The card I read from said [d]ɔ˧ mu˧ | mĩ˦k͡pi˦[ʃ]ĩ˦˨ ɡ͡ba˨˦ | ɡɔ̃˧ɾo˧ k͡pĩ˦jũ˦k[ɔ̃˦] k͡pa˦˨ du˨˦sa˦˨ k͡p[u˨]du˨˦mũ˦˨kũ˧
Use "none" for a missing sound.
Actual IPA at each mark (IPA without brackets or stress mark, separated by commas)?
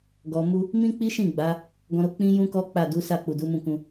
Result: ɡ, ʃ, ɔ˦, u˨